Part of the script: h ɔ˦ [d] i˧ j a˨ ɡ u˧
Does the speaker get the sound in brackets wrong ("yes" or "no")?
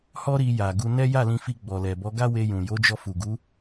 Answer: yes